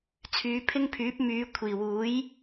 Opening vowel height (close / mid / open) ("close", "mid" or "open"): close